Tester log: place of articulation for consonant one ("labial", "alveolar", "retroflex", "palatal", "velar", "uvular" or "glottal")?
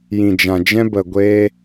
palatal